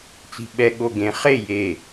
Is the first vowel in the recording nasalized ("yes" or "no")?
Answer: no